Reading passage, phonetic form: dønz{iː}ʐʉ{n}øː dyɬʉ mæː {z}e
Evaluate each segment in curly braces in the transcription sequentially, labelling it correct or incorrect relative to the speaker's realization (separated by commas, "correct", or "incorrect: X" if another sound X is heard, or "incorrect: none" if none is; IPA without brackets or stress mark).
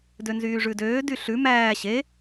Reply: incorrect: yː, incorrect: d, incorrect: ɕ